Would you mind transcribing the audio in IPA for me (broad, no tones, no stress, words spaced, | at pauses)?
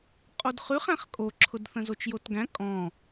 qʼodχʉχ æ̃χkʼoǁʰʊd θə̃zot͡ʃjotɡæ̃ kʼɔ̃